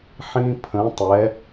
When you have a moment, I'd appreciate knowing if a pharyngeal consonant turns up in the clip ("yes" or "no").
yes